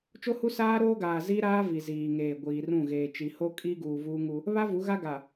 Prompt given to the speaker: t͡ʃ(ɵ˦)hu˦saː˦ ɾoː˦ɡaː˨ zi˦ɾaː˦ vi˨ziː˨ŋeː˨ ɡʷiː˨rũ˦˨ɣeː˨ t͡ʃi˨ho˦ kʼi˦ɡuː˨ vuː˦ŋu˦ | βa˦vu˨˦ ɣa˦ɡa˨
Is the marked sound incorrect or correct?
incorrect